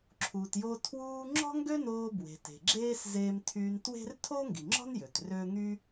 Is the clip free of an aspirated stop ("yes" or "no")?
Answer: no